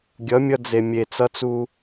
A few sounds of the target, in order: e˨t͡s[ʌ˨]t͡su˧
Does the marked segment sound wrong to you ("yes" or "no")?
yes